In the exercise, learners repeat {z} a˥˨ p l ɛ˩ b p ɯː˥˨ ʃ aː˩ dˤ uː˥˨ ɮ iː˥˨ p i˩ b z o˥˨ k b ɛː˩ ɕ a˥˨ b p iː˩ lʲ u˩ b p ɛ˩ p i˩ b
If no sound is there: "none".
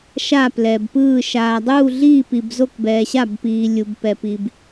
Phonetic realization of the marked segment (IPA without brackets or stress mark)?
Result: ʃ